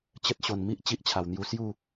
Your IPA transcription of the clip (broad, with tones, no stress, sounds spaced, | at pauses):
t͡ɕ ə˦ t̚ ɕ o˨˩ n m i˦ ʔ t͡ɕ i˦ ʔ t͡ɕʰ a˨˩ w n̪ j u˧ s j u˥˧